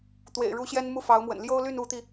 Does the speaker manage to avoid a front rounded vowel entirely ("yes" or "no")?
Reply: no